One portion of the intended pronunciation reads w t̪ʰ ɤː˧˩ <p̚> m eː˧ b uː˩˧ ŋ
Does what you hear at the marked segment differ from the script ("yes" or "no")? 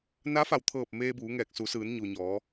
no